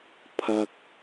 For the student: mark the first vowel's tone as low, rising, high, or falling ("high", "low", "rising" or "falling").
high